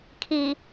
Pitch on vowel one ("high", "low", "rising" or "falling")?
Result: low